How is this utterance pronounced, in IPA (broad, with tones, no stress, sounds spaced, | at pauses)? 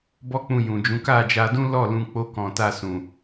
b ɔ˦ k͡p ũ˧ j ũ˨ d͡ʒ ũ˨˦ k a˦˨ d͡ʒ a˧ d ũ˦ l ɔ˦˨ l ũ˧ k͡p o˧ k ɔ̃˨ t a˧ s ũ˨